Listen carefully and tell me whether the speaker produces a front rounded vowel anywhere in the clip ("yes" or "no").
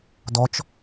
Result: no